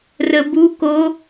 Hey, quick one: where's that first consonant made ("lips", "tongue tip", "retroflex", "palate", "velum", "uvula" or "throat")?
tongue tip